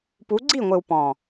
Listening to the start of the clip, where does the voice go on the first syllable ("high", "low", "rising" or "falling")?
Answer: rising